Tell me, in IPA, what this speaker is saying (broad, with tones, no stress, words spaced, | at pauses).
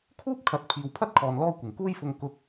kʰuː˥p̚kʰɐ˨˥t̚ pʰiː˨wpʰɐ˥t̚kʰɔː˨n lɔː˧ kʷɪ˨˩ŋkuː˥jfʊ˧ŋ kʊ˧k̚